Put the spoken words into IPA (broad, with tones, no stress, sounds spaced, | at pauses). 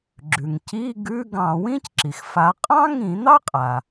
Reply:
ɡ͡ǁ ʉ˩ ŋ c i˧˥˧ ɡ ʉ˧˥˧ ɡ ɑ̃˧˩˧ w ĩ˥ c ǁ i˩ x f a˨˦ qʼ ɑ̃˥ ŋ ĩ˧˩˧ n̪ ɑ˥ qʼ a˩